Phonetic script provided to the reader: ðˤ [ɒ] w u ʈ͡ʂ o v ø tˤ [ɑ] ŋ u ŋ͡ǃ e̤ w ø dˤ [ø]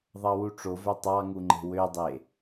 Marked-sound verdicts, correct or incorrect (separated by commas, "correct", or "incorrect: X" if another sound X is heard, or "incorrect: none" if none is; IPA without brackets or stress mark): incorrect: ɑ, correct, incorrect: e